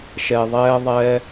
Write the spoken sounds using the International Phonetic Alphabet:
ʃ ɛ˨ ðˤ ɛː˦ ðˤ ɛ˦

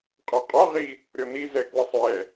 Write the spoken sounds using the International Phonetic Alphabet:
qʼ ɜ qʼ ɒ ʁ i | ɾʲ ɔ n i z ɛ k w ə sˤ j ɛ

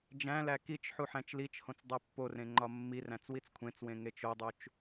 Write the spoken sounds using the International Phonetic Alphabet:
d͡ʒ æ̃ l æ k i t͡ʃ ħ u ħ æ̃ t͡ʃ l i t͡ʃ h õ t͡s dˤ e pː o r ẽ ŋ͡ǃ ɒ mː i r æ̃ t͡s w i t͡s kʷʰ ẽ t͡s w ẽ ŋ e t͡ʃ o dˤ u t͡ʃ

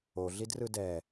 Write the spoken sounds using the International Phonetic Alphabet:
o ɮ i d r ɯ d ɛ

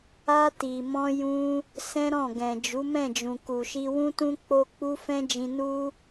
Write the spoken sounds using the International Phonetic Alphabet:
a˧ t i˨ m ɔ̃˧ j ũ˧ | s ɛ̃˦ ɾ ɔ̃˦˨ ɡ ɛ̃˨ d͡ʒ u˨˦ m ɛ̃˦˨ d͡ʒ ũ˨ k u˨ ʃ i˧ w ũ˦ t ũ˦ k͡p o˦ k͡p u˦ f ɛ̃˦ d͡ʒ ĩ˧ n u˦

